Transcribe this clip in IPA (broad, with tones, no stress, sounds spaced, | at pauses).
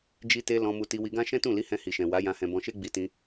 d͡ʒ i˧ t e˧ l ɔ̃˧ m u˧ t i˧ w i˧ ɡ ã˦ ʃ ɛ̃˦ t ũ˦˨ l i˨˦ h ɛ̃˧ h i˨ ʃ ɛ̃˨ w a˨˦ j ã˧ h ɛ̃˧ b ɔ̃˧ ʃ e˦ ɡ͡b i˧ t ĩ˧